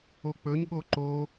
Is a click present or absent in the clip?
present